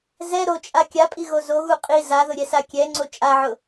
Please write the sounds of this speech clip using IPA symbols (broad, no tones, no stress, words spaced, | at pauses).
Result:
zɛ ɾot͡ʃʼa kʲapʼi ɣozoɣu qʼi zaðʊ ɾʲɛsakʲɛŋ͡ǀo t͡ʃʼaʕʊ